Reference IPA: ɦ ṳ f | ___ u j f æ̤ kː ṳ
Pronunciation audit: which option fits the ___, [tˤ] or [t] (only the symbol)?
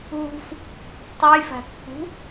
tˤ